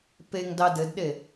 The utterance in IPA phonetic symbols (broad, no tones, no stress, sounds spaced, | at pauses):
p e ŋ d ɑ d ɘ d ɗ e